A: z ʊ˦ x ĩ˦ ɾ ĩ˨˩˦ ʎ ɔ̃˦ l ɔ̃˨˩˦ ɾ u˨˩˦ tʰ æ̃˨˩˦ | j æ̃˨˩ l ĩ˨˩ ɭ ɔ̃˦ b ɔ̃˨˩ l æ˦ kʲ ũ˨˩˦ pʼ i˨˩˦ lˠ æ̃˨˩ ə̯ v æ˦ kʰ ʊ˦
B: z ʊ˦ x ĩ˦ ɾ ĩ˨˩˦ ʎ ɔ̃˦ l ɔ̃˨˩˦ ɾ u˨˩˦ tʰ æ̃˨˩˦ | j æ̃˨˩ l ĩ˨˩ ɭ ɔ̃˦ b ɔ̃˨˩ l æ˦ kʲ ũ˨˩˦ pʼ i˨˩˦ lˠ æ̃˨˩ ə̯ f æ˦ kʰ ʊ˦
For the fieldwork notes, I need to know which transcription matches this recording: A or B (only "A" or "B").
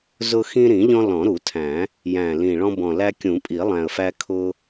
B